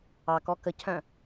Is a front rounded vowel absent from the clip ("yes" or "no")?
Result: no